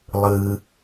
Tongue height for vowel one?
high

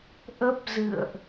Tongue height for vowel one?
mid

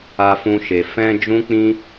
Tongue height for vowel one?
low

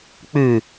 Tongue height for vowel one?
high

